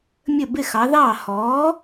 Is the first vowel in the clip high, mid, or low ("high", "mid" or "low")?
mid